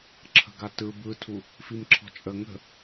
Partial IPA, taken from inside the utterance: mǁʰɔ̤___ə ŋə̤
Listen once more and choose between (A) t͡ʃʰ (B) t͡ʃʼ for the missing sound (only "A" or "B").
B